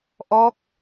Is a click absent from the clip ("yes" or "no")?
yes